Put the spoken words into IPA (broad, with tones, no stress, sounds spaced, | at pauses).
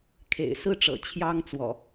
kʰ ḛ˨˩ ɪ̯ s ɹ̩˥˨ ʈ͡ʂ ɤ̰˨˩ t͡ɕʰ j ɑ˦ ŋ t͡s w ɔ̰˨˩